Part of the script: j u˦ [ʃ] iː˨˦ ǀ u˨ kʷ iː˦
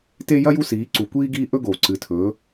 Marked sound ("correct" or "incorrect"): incorrect